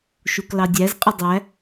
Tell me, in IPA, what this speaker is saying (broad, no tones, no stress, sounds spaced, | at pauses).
ʃ u k l ɑ dʲ æ z qʼ ɪ dˤ æ